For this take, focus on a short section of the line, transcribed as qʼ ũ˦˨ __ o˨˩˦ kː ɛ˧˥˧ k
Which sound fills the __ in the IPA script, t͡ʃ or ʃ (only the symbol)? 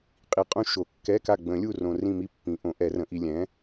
ʃ